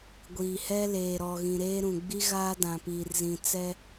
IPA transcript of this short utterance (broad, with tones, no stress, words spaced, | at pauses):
ɡʷiː˨hɛ˦ leː˨ɾɔ˨ɣĩ˨ ɾeː˦ ɾũ˨ɡ͡bi˦ɣaː˦ dã˨piː˨rzĩ˨ t͡sɛ˦